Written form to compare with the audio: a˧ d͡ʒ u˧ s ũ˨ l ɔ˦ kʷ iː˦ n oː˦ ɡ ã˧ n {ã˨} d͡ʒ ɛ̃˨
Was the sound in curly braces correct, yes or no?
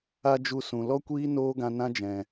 no